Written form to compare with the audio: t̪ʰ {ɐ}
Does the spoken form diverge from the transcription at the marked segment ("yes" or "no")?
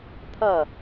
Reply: no